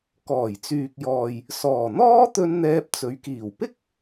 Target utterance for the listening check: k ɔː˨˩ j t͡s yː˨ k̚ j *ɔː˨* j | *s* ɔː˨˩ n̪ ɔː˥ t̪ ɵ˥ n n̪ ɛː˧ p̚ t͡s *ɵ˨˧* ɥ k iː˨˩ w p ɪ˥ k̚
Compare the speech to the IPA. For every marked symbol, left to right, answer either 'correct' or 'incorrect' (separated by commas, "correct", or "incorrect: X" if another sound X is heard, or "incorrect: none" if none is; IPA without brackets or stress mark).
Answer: correct, correct, correct